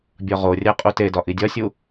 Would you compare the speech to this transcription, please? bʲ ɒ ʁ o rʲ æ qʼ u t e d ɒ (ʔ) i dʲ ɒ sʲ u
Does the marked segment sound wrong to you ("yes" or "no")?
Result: no